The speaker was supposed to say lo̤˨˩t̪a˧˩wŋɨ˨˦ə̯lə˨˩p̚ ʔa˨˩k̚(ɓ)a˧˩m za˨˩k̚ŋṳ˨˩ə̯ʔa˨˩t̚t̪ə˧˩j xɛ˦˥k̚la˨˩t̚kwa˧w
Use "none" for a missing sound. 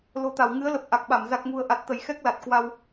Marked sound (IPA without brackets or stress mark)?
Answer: ɓ